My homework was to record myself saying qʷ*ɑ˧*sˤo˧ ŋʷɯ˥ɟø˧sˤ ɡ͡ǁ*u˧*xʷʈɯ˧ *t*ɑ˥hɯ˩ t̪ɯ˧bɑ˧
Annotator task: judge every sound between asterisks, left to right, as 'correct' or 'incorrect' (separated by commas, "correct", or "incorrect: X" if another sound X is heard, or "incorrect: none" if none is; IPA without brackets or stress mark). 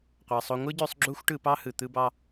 incorrect: ɑ˩, incorrect: u˥, incorrect: p